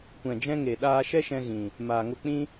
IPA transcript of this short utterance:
kʷ ɛ̃˨ d͡ʒ ɛ̃˧ ŋ e˨ ɗ aː˧ ʃ ɛ˦ ʃ ɛ̃˧ ɣ ĩ˨ | m aː˨ ŋ o˧ k͡p ĩ˦

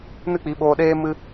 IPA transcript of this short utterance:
n ɨ˦ k͡p i˨˦ ɓ oː˧ ɗ eː˦ m ɨ˦

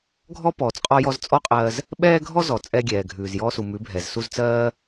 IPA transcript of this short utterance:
ɡʱ ɔ˦ p ɔː˨ t͡s qʼ ɔ˧ j ɔ˧ z t͡sʼ ɔ˦ qʼ ɜː˧ z | ɓ ɛː˦ ɡʱ ɔ˦ z ɔ˨ t͡sʼ ɛ˧ ɡʲ ɛː˨ ɡʱ ʉː˨ z j ɔː˧ s u˨ m ʉ˨˦ bʱ ɛ˨ z s u˧ z t͡s ɜː˦

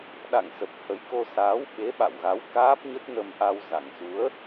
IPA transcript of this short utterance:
ɗ a̰˧˨ ŋ s ə˨˩ p̚ h ə˨˦ j k o˧ s aː˨˦ w ɓ e˨˦ ɓ a̰˧˨ w ɣ a˨˦ w k aː˦˥ p̚ ɲ ə˦˥ t̚ n ə˧ m ʔ a˧ w z a˨˩ ŋ s u˨˦ ə̯

